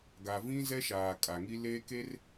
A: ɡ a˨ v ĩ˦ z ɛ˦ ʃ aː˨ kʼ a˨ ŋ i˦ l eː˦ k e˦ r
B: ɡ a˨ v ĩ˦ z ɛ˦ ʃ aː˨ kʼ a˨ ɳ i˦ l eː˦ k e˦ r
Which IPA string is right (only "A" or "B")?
A